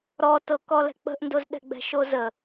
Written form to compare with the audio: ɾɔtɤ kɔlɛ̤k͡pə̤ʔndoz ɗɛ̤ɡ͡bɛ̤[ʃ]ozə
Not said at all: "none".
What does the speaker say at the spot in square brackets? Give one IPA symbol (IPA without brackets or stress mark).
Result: ʃ